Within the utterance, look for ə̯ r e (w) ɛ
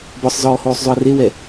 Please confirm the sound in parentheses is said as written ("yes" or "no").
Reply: yes